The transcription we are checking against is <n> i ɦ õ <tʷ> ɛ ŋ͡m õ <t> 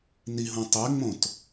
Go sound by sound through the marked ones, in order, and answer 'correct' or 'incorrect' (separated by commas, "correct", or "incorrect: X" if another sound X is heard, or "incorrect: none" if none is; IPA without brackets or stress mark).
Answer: correct, incorrect: tˤ, correct